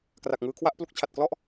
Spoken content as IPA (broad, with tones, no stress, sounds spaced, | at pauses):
k r a˨˩ k̚ ŋ ɯː˧ kʰ w a˥˩ ʔ p l u˦˥ k̚ t͡ɕʰ a˨˩ t̚ k l ɔ˥˩ ʔ